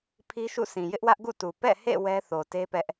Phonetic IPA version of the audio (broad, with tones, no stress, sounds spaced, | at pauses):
pʰ i˦ ʃ ṵ˦˨ sʰ ĩ˨ j ɪ˦ ʔ w ä˦ ʔ ɡ ṵ˦˨ t u˨ p ɛ̰˦˨ h ḛ˦˨ w ɛ˦ θ o˨ t e˦ p ɛ˦ ʔ